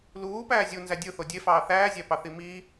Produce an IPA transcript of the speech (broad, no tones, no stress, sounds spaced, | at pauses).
l uː p æː zʲ u n z æ dʲ ɯ θ o dʲ e f ɑː θ æː zʲ æ p ɑ θ i m iː